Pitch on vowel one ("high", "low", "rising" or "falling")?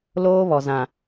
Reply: high